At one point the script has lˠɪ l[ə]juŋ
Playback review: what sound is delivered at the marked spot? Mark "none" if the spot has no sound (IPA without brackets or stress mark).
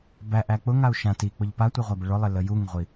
ə